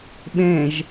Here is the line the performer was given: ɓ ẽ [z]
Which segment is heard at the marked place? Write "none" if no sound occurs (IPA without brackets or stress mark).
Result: ʒ